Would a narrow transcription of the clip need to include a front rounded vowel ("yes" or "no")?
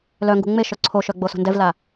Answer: yes